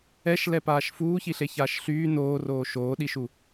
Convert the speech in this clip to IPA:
ɛ ʃ l ɛ p aː ʃ f uː ç i ɬ e ç aː ʃ ɬ yː n oː r oː ʃ oː ɗ i ʃ u

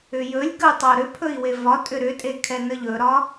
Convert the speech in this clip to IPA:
ʏ j ɵ lʲ ɡ ə u̯ tˤ o ɾ ʏ pʰ ɵ i̯ w e v ɒ tʼ ʏ ɾ ʏ tʼ e kʰ ɛ n ə ʎ ɵ ɾ ɒ

